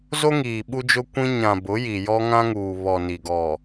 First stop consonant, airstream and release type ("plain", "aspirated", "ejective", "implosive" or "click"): implosive